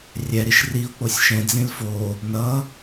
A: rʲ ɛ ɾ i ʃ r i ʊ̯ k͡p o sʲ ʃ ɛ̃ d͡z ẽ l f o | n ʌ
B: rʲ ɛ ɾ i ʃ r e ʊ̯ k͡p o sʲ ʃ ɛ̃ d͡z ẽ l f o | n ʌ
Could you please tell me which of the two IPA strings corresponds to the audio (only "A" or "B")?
A